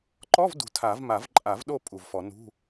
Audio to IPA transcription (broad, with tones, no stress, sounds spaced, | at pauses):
ǃ ɔ˧˥˧ v d ṳ˨˩ tʰ a˨˩˦ v m a˨˩˦ v ǃʼ a˨˩˦ v ɗ o˦˨ pʼ u˨˩ v f ɔ˨˩˦ n ṳ˧˥˧